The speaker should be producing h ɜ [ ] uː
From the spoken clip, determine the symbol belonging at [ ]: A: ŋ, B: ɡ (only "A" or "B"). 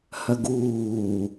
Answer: B